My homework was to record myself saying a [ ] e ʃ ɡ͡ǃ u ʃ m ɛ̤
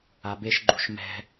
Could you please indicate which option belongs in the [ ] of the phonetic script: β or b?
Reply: b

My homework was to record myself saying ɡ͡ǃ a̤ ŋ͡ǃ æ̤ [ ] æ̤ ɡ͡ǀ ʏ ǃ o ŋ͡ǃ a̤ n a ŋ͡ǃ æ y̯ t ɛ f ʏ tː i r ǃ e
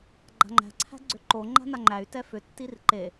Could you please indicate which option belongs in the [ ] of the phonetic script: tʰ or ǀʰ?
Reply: ǀʰ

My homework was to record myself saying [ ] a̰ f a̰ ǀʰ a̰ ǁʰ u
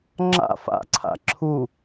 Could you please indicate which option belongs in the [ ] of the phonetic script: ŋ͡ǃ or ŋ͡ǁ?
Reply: ŋ͡ǁ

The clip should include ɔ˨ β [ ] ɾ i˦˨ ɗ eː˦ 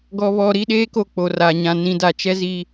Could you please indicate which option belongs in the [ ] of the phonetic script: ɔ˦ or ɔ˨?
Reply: ɔ˨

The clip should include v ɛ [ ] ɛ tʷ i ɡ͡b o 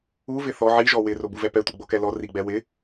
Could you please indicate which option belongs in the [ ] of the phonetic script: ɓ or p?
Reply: p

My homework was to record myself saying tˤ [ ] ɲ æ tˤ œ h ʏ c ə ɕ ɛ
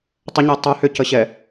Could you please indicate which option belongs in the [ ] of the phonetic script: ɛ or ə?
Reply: ə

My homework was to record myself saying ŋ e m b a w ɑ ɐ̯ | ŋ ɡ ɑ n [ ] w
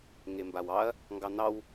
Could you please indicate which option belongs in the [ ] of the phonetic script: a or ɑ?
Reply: ɑ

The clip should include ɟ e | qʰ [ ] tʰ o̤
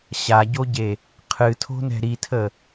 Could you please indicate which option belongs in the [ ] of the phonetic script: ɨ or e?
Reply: ɨ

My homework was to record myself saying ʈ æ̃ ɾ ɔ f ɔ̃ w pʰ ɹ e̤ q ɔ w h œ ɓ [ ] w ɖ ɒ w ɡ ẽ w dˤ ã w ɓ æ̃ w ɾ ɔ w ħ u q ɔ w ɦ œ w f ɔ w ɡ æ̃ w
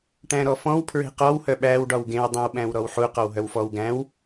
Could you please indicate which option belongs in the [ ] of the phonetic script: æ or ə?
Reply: æ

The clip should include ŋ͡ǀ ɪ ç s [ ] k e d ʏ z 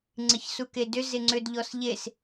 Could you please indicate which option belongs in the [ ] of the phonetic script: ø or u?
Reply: u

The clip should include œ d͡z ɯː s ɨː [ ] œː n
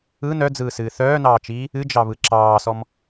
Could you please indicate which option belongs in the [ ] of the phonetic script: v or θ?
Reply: θ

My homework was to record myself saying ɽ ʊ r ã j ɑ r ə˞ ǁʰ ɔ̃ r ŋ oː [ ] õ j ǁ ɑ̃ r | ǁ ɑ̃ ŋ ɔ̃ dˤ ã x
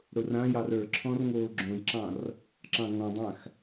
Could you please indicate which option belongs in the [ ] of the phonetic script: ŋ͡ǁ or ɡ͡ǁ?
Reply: ɡ͡ǁ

